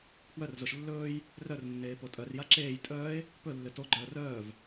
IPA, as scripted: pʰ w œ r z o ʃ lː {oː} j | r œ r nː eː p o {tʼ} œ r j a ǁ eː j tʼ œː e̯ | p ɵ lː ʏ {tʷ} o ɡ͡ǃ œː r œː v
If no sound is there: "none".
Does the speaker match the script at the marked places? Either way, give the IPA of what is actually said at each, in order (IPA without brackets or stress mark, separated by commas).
ɵː, tʼ, t